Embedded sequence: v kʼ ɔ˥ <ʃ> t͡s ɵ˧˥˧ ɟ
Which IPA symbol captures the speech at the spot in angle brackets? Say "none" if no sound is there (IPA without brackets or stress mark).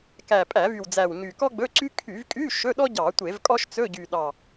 ʃ